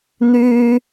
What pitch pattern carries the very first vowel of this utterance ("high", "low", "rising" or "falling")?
high